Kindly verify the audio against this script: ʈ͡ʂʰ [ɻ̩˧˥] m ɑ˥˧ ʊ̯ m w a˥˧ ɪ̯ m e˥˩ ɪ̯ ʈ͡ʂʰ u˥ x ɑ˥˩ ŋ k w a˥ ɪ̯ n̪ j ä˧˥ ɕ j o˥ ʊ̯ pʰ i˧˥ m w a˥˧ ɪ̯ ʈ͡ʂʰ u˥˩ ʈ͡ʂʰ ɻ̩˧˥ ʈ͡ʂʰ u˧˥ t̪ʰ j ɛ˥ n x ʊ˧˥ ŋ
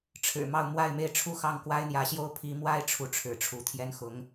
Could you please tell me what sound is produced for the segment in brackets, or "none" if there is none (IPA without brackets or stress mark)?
ɻ̩˨˩